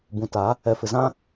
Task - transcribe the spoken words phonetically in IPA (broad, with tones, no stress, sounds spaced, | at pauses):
b ũ˨ t a˨˦ | ɛ˨ f ɪ˨ z ã˦